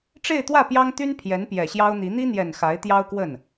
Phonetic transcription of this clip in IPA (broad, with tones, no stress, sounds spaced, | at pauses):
ʈ͡ʂ e˥˧ ɪ̯ t̪ w ä˥˩ p j ɑ˥ ŋ t̪ y˥ n pʰ j ɛ˧˥ n p j ɛ˨˩ ɕ j ɑ˥ ʊ̯ n̪ i˧˥ n̪ i˥ n̪ j ɛ˨˩ n x a˧˥ ɪ̯ t̪ j ɑ˥ ʊ̯ k w ə˥˩ n